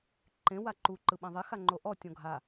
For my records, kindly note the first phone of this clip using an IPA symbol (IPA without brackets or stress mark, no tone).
ǃ